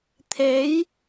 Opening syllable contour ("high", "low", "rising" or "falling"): rising